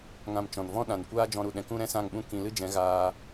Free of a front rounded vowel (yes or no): yes